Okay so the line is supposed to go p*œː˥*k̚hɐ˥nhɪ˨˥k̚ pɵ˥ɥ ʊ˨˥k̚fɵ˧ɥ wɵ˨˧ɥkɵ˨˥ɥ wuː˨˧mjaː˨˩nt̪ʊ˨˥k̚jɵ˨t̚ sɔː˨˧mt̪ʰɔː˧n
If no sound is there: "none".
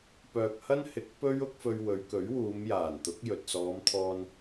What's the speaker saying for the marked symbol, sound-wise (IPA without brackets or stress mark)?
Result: œː˨